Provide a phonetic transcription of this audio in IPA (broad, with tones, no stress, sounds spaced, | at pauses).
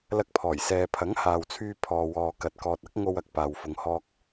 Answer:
l ɐ˧ k̚ pʰ ɔː˨˩ j s ɛː˨ pʰ ɐ˨˥ ŋ h aː˨ w t͡sʰ yː˧ pʰ ɔː˨ w ɔː˨ k ɐ˨ t̚ k ɔː˨ t̚ ɐ˥ k̚ ŋ o˧ w ɐ˨ k̚ p aː˨ w f ʊ˨ ŋ h ɔː˧ k̚